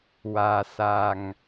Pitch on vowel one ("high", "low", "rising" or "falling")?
low